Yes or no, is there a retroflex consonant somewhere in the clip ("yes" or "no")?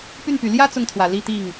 no